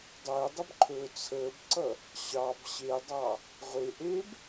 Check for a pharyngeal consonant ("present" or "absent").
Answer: absent